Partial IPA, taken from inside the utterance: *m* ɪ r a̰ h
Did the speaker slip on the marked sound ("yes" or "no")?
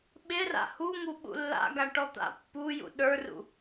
yes